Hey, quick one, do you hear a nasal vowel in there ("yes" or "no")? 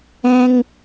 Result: yes